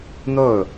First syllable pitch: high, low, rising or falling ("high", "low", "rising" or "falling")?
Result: falling